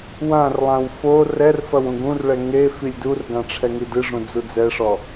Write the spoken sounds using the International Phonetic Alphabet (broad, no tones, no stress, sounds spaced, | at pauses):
w ã r lˠ ã w f o r ɛ r f ɐ w ũ ɡ ũ r ɭ ɛ ŋ e f i lʲ d u r ɡ ã ʈ͡ʂʰ ɛ ŋ i d ɨ ʐ ũ d͡z u d͡z ɛ ʂ ɔ